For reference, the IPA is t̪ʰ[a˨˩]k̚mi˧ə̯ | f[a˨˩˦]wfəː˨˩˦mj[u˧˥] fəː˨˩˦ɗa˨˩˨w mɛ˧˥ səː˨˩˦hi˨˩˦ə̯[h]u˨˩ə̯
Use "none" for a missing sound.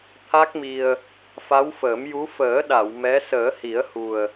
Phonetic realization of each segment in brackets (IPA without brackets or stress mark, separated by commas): a˦˥, a˧˥, u˧˥, h